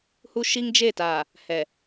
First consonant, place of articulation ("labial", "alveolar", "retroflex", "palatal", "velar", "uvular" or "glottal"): glottal